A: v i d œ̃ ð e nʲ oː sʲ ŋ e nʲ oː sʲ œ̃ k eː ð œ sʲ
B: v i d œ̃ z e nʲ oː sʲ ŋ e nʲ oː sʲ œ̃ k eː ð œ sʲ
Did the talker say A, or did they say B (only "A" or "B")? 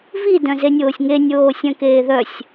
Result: B